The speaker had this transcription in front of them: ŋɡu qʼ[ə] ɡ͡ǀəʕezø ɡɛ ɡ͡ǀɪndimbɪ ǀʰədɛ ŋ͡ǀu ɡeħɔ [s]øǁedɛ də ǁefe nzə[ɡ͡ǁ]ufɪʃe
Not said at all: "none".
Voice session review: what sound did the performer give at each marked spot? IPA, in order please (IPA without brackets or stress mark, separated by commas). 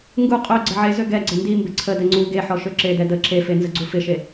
ø, ʃ, ɡ͡ǀ